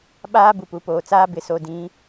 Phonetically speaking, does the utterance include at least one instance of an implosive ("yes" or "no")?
yes